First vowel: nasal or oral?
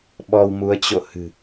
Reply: oral